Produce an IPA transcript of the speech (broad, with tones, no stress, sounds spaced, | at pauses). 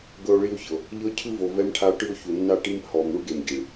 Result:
ɡ ɤ˧ o̯ ɭ i˧ o̯ ç ɤ˨ | ʎ ɤ˧ cʰ ɯ˧ v o˨ v ɛ˧ m ʈʰ a˧ o̯ ʈ ɯ˧ o̯ ç u˨ nː a˧ ʈ i˧ m h ɔ˨ m ɳ u˦ ɡ e˨ m ɟ i˨ ɭ